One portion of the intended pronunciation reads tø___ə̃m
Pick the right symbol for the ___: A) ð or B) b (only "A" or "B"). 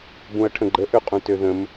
A